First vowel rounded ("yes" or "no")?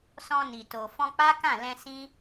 yes